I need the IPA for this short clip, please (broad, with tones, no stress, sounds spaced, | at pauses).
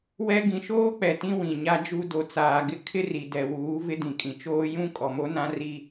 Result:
w ɛ˦ ɡ ĩ˨ ʃ oː˦ k͡p ɛ˨ t ĩ˦ w ĩ˨ ɲ a˦ d͡ʒ u˦ d o˨ t͡s aː˨ ɡ ɪ˦ kʰ ɪ˦ r i˨ d ɛ˨ w uː˨˦ v ɪ˦ d ĩ˨ kʼ ĩ˨ t͡ʃ oː˦ j ũ˦ kʼ ɔ˨ m o˦ n ã˦ r i˦